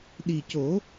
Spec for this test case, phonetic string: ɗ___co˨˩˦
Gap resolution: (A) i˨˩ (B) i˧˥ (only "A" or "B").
A